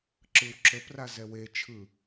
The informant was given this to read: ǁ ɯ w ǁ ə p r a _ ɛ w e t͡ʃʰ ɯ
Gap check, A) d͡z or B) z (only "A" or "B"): B